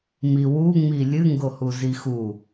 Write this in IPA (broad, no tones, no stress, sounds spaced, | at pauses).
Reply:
m i w u ŋ͡m i lʲ ɨ ŋ ɡ o h u z i x u